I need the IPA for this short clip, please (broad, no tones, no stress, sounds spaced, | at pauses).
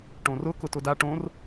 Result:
ʈ õ r ʊ k ʊ t ʊ d a ʈ õ r